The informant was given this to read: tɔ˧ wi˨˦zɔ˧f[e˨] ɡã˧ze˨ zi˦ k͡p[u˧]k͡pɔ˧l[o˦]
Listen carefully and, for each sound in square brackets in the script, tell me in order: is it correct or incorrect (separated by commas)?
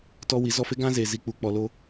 incorrect, correct, correct